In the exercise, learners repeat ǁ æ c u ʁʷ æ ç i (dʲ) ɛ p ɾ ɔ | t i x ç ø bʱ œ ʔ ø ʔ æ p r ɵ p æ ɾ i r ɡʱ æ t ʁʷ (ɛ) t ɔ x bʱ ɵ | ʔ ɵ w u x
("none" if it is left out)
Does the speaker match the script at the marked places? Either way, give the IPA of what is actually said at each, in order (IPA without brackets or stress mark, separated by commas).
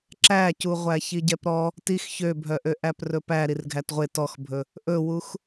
ɟ, e